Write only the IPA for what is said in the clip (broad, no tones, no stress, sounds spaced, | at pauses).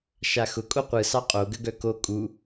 ʃ a x ʊ kʼ o qʷ ɯ s ɑ qʼ o ɡ ə ɡ œ k o kʼ u